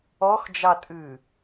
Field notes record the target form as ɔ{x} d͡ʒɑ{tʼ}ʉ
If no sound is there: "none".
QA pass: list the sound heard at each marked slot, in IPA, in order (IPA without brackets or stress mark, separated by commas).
x, tʼ